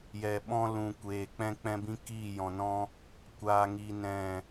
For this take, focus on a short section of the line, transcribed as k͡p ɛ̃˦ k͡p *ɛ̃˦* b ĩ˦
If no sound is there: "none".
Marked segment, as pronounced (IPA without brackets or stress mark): ɛ̃˦